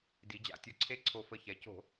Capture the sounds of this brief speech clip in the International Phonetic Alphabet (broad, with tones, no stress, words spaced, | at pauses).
di˩˧d͡ʑa̰˧˩tʲo˧˩ǀʰe˦ ǀʰo˧˩fə˧˩çɛ˩˧co̤˧˩˧